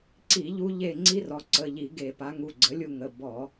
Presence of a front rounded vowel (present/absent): absent